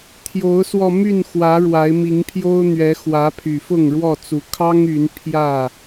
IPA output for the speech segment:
t̪ʰjo˨˦ʊ̯swɔ˧ my˥˨nxwä˨˦ ɻwa˨˦ɪ̯mi˨˦ŋpʰjo˦ʊ̯n̪ɥɛ˨˦ xwä˨˦pʰy˨˩fʊ˥˨ŋ ɻwɔ˥˨t͡su˨˦ kʰɑ˦ŋ y˨˦n pʰjä˥˨

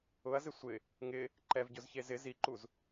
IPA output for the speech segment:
ʊɐ̯zɪ sʷɪ | ŋɪ | ǃɛvɟʊzçe zɪ ziǃuz

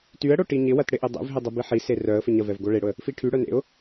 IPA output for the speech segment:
tyə̯ɽo ʈiɲɪwɐt ɽɪʔedˤḛvɦɪ dˤʊbiħise rœə̯fɪ ɲɐvɛv ɡoɭeɽʊə̯ | fiʈʰyɽœ nḛʊ̯

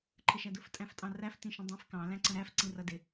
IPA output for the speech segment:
ǃʰəʃædʊf tʼæ̃ftʼɑ̃ræf tĩʃə̃dˤĩf kɑ̃ læ̃ǀə̃ɾæf ǀĩrʌdɪ

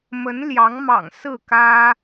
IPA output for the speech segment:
mə˧˥nljɑ˧˥ŋmɑ̰˨˩ŋ sɹ̩˥˩kä˥

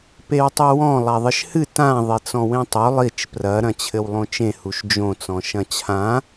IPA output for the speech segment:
pewtˤuwɔ̃ lˠaðˤɘʃhɨ tã ðˤet͡sɔ̃wẽtˤo lˠit͡ʃ prɐ ɾɐ̃t͡ɕʰɘwlˠõt͡ʃẽ huʃd͡ʒõ t͡sɔ̃ʃɐ̃t͡ɕʰã

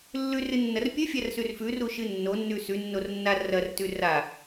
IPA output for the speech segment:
lːʉrɨnːɐr pʲɵfʲarsʉr fʉruʃɨ nːonːʉ sʉnːornːa rɐrtʉ ra

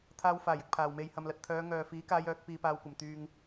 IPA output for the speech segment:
t̪ʰaː˧wfaː˨˩jɪ˨k̚ pʰaː˨wme˧jhɐ˧mlɐ˧t̚ t̪ʰœː˨˧ŋœː˨fiː˨˥kaː˨˧j œː˨˥k̚piː˧paː˧wkʷɐ˨˩m t̪yː˨ŋ

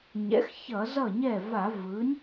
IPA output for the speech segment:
ɲɛ̰˩˥x çʌ˧˩˧zʌ˥˩ɲɛ˥˩ va˧˩˧vɯ˩˥nʲ

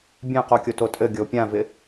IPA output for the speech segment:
bʲɛ̃qokʲo totʼɘ ɡʲopʲãvɪ

